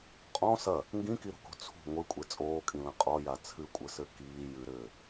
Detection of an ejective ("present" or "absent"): present